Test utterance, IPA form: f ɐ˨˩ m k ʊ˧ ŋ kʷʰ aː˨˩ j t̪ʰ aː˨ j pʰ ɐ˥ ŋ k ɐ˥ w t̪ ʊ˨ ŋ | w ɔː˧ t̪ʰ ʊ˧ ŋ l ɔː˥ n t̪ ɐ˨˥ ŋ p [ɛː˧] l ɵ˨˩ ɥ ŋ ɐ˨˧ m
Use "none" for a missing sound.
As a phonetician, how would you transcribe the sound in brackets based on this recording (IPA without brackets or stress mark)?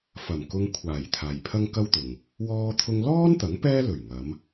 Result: ɛː˥